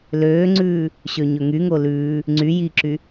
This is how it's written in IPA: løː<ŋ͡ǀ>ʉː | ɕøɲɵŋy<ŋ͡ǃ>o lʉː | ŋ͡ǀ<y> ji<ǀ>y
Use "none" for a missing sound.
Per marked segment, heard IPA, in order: ŋ͡ǀ, ŋ, y, ǁ

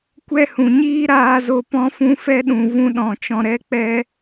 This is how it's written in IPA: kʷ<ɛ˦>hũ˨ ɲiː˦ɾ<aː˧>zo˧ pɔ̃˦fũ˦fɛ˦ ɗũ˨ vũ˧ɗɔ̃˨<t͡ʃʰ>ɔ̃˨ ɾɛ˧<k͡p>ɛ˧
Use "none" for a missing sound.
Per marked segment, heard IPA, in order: ɛ˦, aː˧, t͡ʃ, k͡p

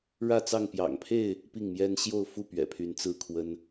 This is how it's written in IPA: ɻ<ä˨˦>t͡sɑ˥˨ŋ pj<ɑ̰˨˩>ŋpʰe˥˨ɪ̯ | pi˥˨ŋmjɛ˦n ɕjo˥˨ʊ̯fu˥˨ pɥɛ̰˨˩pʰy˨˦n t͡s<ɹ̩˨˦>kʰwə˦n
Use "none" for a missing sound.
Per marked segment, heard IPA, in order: ä˥˨, ɑ̰˨˩, ɹ̩˥˨

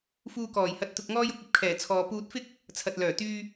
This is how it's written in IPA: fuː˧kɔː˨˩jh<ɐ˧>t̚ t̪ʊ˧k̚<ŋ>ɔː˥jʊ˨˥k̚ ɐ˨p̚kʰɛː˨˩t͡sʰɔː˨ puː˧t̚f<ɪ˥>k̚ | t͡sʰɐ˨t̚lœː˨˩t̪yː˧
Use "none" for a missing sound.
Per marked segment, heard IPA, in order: ɐ˧, ŋ, ɪ˥

